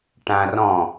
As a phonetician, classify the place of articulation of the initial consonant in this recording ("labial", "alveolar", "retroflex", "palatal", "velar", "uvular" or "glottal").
retroflex